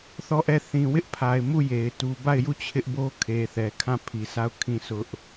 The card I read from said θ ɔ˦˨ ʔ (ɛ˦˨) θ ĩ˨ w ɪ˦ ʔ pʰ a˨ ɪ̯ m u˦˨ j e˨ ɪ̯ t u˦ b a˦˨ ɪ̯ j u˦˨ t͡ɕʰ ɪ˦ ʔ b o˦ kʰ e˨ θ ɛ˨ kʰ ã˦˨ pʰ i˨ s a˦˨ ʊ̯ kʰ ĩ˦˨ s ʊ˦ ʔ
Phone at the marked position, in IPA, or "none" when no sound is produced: ɛ˦˨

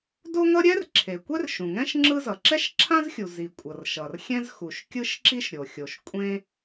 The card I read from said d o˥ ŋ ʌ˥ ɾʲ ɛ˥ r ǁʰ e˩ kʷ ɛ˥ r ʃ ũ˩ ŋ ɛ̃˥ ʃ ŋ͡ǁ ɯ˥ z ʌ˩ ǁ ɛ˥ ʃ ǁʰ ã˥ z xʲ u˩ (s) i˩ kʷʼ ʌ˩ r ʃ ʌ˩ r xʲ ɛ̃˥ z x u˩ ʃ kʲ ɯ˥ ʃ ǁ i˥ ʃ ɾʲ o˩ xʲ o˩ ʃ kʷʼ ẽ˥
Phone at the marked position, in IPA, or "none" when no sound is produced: z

